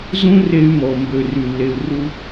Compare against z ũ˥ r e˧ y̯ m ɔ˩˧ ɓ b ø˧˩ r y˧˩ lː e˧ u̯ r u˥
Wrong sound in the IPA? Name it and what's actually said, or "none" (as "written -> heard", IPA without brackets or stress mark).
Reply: ɓ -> m